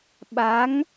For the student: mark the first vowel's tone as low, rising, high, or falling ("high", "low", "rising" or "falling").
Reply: rising